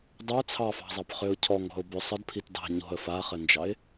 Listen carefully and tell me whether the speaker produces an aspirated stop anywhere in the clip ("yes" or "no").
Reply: yes